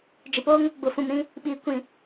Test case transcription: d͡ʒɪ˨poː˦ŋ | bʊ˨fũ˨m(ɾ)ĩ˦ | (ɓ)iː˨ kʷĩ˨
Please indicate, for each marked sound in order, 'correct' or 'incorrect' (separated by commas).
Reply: correct, correct